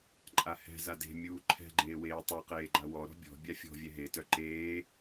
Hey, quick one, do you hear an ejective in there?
yes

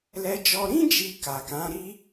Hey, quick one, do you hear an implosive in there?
no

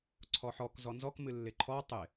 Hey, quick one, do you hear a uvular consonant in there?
no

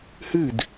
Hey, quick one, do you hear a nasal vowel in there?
no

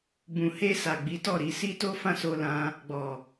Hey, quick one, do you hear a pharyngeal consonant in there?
no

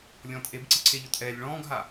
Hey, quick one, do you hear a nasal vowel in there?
yes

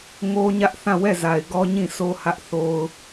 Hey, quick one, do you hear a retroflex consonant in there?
no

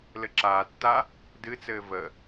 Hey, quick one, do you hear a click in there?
yes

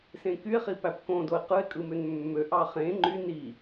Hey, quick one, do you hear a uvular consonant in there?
yes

